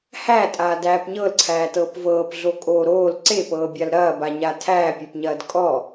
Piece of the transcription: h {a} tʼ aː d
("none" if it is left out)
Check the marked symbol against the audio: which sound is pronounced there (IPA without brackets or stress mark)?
æ